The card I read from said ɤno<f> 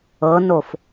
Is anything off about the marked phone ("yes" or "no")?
no